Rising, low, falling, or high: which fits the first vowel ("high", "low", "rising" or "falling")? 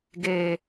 low